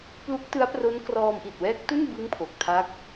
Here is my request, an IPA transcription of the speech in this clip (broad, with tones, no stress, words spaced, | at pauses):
plu˦˥k̚tɯ˦˥a̯pro˦˥n krɔː˧mʔi˨˩t̚wɛː˦˥k̚tu˥˩n bɯ˦˥ŋ pʰo˨˩k̚tʰa˦˥k̚